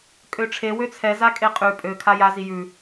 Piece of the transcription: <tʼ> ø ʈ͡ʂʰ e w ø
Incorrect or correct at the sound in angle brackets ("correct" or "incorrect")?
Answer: incorrect